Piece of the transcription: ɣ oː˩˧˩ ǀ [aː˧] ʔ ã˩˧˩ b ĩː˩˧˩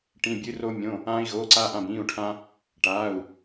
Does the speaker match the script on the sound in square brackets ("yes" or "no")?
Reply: yes